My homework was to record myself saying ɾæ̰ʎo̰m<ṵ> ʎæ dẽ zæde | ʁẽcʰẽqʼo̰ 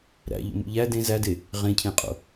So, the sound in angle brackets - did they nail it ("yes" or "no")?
yes